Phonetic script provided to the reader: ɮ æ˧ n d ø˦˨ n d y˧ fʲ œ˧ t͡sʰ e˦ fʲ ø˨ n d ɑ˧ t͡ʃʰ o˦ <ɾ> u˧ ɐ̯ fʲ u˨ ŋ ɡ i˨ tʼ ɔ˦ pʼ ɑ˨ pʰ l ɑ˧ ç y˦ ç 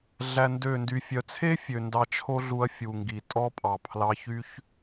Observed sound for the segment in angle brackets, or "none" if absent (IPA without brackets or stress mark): ɮ